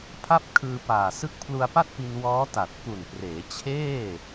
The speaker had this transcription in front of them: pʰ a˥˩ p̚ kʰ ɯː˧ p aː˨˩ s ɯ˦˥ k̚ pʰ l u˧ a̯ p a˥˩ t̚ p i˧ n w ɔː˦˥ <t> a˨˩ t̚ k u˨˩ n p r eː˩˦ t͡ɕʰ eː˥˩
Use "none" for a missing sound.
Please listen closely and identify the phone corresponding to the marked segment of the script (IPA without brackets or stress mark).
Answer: t